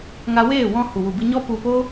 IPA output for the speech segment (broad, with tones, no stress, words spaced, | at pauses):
ŋa˦ weː˦˨wɔ̃˧ hu˨wu˨bɨ˧ɲɔ˦ pu˧po˦